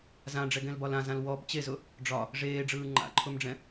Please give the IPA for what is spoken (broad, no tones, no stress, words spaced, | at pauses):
zãɖ͡ʐɛɡɛ̃lbɒl ãzãl wɔb t͡ɕezʊ | ɖ͡ʐɒ | ʐeːɖ͡ʐɯː ŋ͡ǃa̰ǃʰʊmɖ͡ʐɛ̃